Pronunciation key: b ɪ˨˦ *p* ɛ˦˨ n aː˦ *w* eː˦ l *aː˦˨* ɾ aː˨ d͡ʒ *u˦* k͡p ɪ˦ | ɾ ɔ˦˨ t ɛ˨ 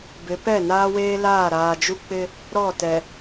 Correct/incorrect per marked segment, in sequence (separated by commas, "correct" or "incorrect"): correct, correct, correct, correct